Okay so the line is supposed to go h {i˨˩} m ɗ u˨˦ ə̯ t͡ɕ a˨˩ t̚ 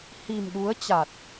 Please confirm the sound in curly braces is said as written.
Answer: yes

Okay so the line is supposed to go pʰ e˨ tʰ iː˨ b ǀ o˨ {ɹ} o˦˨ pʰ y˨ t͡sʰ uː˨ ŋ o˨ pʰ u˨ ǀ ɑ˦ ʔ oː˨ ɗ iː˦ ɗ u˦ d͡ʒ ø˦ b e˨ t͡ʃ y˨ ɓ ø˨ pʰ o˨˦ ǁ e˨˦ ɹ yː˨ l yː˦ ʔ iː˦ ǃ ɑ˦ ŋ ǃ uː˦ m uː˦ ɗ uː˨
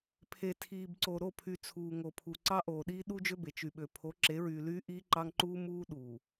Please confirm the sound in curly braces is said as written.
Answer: no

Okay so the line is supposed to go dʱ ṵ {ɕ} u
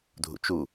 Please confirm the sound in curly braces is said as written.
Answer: no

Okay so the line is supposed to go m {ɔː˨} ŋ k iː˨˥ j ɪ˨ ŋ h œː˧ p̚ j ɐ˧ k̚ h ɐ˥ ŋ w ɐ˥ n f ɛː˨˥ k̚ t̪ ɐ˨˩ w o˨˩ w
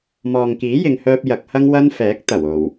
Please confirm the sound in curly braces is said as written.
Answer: yes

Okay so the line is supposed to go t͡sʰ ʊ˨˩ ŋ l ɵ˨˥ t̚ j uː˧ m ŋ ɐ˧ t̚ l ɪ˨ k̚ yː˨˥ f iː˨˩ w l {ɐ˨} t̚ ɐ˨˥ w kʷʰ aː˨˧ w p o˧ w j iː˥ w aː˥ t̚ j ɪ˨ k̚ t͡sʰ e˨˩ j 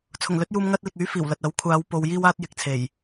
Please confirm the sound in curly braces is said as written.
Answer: yes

